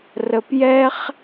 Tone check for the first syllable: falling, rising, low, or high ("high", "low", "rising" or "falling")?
low